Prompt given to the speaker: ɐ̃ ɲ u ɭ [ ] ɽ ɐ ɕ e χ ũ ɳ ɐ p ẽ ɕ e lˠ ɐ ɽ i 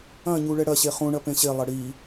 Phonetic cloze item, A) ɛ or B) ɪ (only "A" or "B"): A